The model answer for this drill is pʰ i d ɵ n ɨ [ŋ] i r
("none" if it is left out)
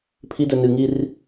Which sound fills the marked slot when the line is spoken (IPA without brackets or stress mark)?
ŋ